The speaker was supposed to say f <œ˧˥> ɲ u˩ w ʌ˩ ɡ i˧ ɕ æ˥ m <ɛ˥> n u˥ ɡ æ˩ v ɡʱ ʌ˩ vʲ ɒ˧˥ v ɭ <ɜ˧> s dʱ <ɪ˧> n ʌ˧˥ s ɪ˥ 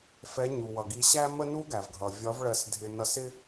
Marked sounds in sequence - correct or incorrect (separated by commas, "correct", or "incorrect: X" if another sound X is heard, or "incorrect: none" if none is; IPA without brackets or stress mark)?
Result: incorrect: ɛ˧˥, incorrect: ə˥, correct, correct